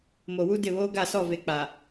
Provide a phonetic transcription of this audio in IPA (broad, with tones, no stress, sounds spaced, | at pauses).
m o˨ w u˦ d ɪ˦˨ β oː˦ ɡ a˦˨ s ɔ˦˨ v e˨ k͡p a˨